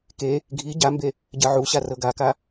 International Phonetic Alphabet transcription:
k e | ɡʱ i ɟ a m b e | ɟ ɜ ʕ u ɕ a r ɤ ɡ a k a

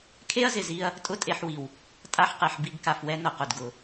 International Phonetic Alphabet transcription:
kʰ e˦ ɐ̯ z ɪ˨ z i˧ ɐ̯ | tʼ ʊ˦ tʼ e˧ ħ w i˨ w | tʼ a˧ ħ q e˨ ħ b i˦ ɡ k a˧ f w ɛ˦ n ʊ˨ q ʊ˨ d ɡ ʊ˨

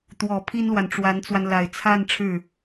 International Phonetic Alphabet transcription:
t̪ w ɔ˨˩ pʰ i˥ n l w a˨ n ʈ͡ʂ w a˧˥ n t͡s w a˧ n l a˨˩ ɪ̯ t͡sʰ a˥˧ n ʈ͡ʂʰ ɻ̩˥˩

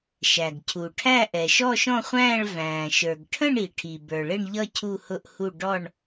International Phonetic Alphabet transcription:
ʃ æ˩ ɡ cʰ u˩ ʈʰ æ˦˨ ʔ ɛ˩ ʃ ɔ˦˨ ʃ ɔ̃˦˨ χʷ æ̃ː˦˨ ɭ v æ̃ː˩ ʃ ə˞˩ ɡ ʈʰ ə̃˦˨ ɳ i˩ ʈʰ i˩ b ə˞˩ ɭ ɪ˦˨ ɳ ʎ ʌ˦˨ cʰ u˦˨ h ʊ˦˨ ʔ h u˦˨ ɖ ɔ˦˨ ɳ

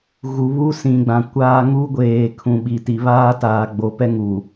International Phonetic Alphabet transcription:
ɣ u˨ β u˦ s ĩ˨ ɡ͡b ã˨ kʷ aː˦ ŋ u˦ ɡʷ eː˨ kʰ ũ˨ ɓ i˨ t i˨ β aː˦ t aː˨ ɡ͡b o˨ p ɛ˦ ŋ u˨

